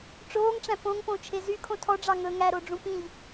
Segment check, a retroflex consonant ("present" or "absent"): present